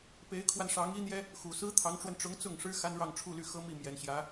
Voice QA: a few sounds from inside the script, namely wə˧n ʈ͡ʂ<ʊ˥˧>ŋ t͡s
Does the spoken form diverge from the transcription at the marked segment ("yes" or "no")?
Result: yes